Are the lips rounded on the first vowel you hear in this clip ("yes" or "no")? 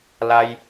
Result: no